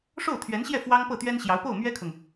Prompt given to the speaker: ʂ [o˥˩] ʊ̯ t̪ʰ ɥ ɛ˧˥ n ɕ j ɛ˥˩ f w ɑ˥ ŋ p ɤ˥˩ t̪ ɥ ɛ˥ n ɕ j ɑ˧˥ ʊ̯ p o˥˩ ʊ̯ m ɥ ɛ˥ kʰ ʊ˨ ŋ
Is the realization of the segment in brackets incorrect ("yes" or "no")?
no